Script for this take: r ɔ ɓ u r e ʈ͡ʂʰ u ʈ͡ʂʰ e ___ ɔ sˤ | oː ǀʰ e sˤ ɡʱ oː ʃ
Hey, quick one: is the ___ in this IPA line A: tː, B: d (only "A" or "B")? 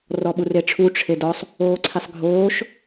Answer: B